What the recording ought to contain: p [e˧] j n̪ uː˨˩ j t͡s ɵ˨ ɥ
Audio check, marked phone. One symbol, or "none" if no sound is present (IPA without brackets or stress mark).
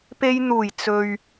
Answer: e˧